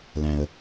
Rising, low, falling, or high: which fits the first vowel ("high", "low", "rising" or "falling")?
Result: low